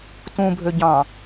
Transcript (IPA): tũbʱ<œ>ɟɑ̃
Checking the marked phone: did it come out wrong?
yes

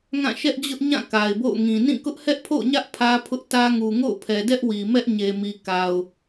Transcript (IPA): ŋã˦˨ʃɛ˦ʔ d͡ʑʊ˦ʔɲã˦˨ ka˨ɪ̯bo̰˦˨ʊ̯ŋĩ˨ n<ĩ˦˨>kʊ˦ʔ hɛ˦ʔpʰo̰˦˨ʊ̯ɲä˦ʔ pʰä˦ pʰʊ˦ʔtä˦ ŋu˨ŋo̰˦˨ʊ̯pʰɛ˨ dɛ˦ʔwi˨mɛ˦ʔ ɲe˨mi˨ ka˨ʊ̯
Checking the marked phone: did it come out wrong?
no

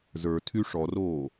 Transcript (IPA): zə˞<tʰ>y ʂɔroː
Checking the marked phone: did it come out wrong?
no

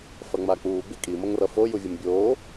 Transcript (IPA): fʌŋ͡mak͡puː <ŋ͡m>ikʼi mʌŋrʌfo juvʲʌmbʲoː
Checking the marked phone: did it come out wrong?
yes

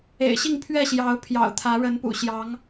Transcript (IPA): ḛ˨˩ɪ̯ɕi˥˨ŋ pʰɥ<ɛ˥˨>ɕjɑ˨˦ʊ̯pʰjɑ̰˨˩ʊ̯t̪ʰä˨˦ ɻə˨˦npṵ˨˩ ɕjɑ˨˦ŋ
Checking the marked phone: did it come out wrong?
no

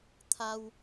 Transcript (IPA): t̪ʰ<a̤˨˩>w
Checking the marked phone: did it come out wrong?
yes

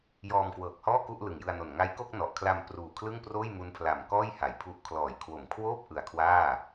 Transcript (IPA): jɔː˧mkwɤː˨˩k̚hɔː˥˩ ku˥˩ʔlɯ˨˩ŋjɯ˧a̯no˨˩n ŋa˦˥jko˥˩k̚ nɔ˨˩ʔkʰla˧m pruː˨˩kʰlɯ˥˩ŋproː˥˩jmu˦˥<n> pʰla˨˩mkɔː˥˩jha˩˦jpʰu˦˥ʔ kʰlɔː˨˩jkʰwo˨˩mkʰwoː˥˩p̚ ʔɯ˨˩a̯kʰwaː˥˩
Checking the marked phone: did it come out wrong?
no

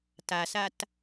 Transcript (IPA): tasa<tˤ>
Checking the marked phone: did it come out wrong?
yes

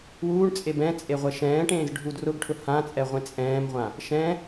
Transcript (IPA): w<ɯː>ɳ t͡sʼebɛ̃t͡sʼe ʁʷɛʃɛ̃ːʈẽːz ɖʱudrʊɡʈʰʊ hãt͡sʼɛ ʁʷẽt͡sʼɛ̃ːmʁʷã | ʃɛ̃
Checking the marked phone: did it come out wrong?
yes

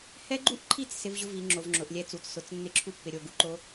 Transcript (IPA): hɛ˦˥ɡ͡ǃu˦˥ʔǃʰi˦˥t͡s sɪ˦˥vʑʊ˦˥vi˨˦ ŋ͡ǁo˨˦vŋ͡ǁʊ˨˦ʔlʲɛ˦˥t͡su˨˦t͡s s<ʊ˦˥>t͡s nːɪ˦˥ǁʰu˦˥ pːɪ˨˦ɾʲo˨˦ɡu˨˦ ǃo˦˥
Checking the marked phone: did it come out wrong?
yes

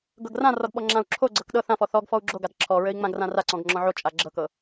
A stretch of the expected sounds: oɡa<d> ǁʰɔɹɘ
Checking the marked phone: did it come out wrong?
no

